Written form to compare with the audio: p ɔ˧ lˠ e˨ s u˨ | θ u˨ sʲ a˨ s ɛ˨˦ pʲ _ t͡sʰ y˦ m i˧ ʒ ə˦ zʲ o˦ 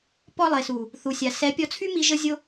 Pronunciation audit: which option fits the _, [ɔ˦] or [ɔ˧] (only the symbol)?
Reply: ɔ˧